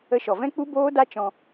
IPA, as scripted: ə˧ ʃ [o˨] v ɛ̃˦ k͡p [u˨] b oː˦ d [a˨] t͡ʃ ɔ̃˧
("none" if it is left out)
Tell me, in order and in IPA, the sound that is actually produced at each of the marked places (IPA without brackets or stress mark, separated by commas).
ɔ˨, u˦, a˦